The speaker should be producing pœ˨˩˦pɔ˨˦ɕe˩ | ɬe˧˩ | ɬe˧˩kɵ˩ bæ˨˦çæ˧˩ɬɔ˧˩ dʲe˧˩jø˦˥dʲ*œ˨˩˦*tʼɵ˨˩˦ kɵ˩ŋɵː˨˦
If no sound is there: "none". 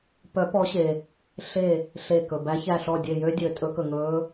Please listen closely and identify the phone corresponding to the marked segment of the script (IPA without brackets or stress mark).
ø˨˩˦